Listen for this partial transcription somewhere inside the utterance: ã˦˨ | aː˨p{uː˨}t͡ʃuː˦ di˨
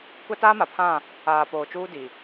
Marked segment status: incorrect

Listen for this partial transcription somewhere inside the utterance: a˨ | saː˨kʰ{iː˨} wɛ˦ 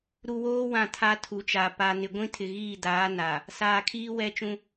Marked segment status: incorrect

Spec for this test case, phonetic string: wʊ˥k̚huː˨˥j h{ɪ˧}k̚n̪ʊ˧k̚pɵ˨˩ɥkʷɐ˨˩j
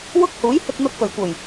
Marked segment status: correct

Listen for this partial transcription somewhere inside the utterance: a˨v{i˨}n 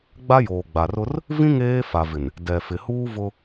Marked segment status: incorrect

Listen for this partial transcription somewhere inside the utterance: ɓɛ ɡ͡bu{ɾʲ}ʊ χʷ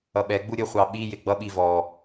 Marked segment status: correct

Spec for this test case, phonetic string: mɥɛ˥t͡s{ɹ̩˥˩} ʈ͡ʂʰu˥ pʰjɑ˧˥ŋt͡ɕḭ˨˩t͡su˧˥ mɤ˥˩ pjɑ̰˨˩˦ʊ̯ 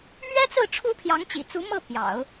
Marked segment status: correct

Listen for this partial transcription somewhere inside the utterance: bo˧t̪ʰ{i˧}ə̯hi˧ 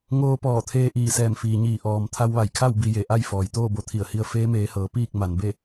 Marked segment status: incorrect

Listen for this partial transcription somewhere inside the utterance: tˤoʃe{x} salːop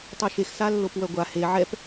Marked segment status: correct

